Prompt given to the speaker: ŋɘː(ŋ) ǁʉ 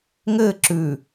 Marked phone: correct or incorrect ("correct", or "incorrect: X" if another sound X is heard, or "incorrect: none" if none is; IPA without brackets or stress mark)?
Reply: incorrect: none